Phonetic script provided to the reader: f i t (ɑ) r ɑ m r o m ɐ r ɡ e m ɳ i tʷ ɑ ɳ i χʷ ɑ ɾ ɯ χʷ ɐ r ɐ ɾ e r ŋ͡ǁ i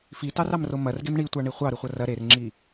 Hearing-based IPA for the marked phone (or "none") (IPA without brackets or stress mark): ɑ